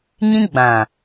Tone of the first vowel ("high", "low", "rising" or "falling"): high